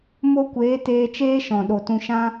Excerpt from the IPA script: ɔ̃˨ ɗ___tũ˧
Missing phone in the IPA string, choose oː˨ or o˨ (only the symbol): o˨